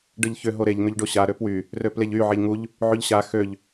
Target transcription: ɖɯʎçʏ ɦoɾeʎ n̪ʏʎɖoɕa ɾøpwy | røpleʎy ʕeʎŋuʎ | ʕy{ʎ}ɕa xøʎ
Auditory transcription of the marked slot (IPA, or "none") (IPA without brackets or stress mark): ʎ